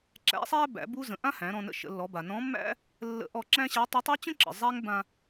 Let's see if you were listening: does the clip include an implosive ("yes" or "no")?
no